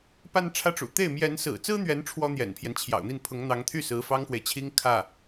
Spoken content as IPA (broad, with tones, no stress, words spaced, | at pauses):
pa˥˧nʈ͡ʂʰä˥˩ʈ͡ʂṵ˨˩ t̪e˥˩ɪ̯ mjɛ˧˥nsɹ̩˨˩t͡sɹ̩˥n̪ɥɛ˧˥n ʈ͡ʂʰwɔ˥n̪jɛ̰˨˩npʰjɛ˦n t͡ɕʰjɑ̰˨˩ʊ̯n̪i˥˩n pʰʊ˧˥ŋn̪ɑ˧˥ŋt̪ʰy˥˩ sɹ̩˧˥fɑ˥ŋxwe˨ɪ̯t͡ɕʰi˥ŋ kʰä˥˩